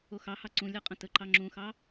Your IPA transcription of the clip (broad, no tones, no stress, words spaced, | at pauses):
oxɑhɑ ǀũlʲʌ qʼə̃təǃɑ ŋ͡ǁũxɑ